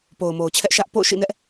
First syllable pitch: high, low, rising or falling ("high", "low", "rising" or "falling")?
low